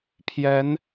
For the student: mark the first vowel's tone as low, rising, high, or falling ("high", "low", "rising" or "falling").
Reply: rising